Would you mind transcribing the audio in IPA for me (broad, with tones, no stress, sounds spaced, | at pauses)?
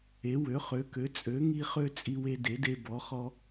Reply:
e˨˥ w ø˨˥ χ ø˨˥ k ø˨˥ t͡sʼ ø˨˥ ŋ i˦ χ ø˦ t͡sʼ i˦ w e˦ d e˨˥ d e˦ b ɔ˨˥ χ ɔ˦